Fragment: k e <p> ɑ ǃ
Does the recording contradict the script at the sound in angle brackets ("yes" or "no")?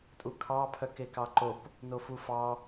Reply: yes